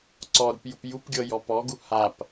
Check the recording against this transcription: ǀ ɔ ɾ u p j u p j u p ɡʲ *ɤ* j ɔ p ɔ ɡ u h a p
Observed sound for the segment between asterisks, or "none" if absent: ɤ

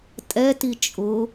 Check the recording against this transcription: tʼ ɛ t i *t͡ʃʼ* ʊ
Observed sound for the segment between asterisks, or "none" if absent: t͡ʃʼ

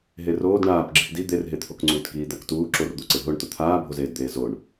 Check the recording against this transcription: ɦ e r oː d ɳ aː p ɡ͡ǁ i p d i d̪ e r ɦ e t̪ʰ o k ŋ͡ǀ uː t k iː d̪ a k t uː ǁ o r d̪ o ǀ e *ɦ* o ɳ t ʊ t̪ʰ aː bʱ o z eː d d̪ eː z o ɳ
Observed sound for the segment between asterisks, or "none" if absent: ɦ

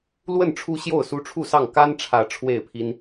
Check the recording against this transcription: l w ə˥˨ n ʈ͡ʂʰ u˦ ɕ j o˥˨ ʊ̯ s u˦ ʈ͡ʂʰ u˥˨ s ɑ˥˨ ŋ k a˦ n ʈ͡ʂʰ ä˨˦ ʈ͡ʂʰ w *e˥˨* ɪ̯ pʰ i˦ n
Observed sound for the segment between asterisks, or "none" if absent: e˥˨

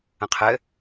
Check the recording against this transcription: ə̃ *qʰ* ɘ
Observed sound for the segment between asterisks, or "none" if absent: qʰ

